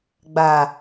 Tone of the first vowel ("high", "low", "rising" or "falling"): low